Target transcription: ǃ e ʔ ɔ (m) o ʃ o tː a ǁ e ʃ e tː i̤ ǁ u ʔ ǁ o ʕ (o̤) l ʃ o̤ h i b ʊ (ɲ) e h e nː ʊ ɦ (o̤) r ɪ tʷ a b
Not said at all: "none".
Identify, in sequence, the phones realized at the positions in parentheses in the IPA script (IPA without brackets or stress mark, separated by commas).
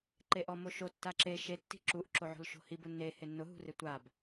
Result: m, o̤, nː, ṳ